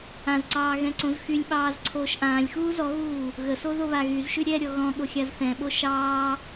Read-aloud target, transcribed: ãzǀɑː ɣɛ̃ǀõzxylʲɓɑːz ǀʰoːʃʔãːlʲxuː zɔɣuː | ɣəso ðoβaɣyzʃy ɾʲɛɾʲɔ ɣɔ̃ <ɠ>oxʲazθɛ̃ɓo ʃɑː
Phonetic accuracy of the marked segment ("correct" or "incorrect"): correct